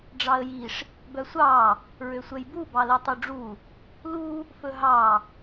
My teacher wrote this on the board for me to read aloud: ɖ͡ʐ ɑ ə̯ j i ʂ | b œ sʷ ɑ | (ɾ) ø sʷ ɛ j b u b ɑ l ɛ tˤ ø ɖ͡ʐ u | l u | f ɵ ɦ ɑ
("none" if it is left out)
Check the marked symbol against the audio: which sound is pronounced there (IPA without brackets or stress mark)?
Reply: ɹ